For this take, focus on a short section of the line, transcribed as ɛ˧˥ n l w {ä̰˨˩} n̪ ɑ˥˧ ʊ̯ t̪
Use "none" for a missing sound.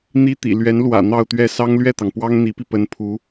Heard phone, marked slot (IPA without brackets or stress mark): ä̰˨˩